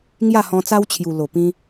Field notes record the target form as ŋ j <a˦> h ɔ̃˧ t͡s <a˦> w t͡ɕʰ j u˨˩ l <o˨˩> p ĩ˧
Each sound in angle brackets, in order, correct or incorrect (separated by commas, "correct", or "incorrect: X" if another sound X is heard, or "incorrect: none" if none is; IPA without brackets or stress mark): incorrect: a˥˧, correct, correct